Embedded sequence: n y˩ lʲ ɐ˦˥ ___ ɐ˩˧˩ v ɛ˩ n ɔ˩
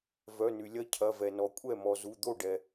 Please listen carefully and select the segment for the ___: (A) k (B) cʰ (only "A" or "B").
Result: B